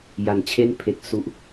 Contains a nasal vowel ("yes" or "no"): no